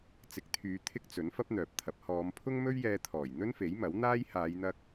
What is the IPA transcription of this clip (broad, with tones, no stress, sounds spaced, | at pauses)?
t͡s ɪ˨˥ k̚ t̪ʰ yː˨˧ t̪ʰ ɪ˥ k̚ t͡s ɵ˨˥ n f ɐ˥ p̚ n̪ œː˨ p̚ t̪ʰ ɐ˨˥ p̚ h ɔː˨˧ m pʰ ʊ˥ ŋ m ɵ˥ ɥ j ɛː˧ t̪ʰ ɔː˨˩ j n̪ ɵ˥ n f e˨˥ j m ɐ˨˥ w n̪ aː˥ j h aː˨˧ j n̪ ɐ˧ k̚